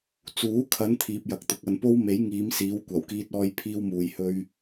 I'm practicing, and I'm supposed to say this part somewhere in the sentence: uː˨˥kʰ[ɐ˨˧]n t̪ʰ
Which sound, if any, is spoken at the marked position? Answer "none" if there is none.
ɐ˨˧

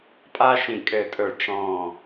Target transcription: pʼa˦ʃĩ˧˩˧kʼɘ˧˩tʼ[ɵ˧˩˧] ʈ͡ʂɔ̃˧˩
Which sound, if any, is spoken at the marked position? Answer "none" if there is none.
ɵ˧˩˧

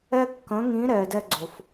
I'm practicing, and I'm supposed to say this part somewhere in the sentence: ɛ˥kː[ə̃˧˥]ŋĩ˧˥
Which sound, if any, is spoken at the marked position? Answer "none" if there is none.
ə̃˧˥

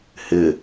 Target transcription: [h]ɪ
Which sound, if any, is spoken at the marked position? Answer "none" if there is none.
h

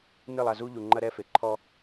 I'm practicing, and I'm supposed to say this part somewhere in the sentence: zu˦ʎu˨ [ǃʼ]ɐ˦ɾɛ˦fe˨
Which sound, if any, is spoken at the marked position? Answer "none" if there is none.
ŋ͡ǃ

